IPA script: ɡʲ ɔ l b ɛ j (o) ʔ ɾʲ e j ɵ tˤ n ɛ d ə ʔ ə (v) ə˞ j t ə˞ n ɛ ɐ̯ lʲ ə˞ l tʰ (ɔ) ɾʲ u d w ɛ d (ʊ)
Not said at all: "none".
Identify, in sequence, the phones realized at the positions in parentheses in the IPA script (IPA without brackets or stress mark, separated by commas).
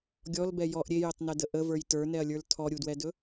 ɔ, v, ɔ, ɵ